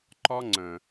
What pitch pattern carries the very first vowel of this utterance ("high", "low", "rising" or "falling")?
high